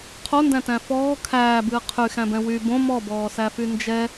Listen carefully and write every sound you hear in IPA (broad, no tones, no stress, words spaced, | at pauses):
qʰondæ̃tæ̃ fɔː kʰæːbɨː qʰyxæ̃bɛ̃ wy bõ mɔbɔːsæfy nd͡ʒɛ